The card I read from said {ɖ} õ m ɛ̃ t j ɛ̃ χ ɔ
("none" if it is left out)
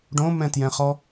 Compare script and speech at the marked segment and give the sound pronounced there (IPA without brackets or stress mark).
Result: ɖ